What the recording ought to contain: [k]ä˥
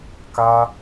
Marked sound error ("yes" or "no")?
no